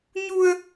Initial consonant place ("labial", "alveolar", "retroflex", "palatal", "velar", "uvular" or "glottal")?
palatal